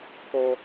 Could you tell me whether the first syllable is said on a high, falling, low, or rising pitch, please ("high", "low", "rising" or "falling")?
high